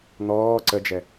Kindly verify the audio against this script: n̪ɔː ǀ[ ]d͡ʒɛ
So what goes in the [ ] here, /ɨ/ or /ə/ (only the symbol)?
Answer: ə